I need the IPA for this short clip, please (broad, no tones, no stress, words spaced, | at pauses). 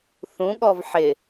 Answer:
θũɠɔv ħɪ